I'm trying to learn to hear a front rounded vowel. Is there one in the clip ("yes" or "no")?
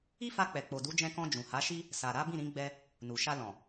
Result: no